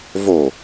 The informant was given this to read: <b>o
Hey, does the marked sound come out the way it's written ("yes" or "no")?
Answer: no